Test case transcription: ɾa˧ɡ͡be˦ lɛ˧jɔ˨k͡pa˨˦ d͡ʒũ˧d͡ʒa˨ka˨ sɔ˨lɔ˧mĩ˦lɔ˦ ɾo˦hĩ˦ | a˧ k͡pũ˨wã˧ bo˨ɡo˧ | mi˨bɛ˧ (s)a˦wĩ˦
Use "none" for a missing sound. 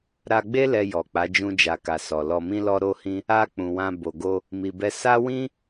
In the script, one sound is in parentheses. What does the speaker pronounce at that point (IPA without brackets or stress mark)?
s